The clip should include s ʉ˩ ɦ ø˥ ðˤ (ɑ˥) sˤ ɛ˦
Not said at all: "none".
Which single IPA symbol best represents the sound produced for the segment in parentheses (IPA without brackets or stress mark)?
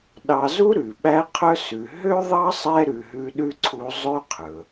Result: ɑ˥